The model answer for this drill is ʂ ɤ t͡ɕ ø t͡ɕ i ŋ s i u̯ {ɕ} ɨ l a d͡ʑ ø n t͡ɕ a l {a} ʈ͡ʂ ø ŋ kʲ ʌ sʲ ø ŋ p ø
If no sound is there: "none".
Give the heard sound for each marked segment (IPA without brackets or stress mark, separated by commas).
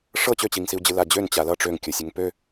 d͡ʑ, ʌ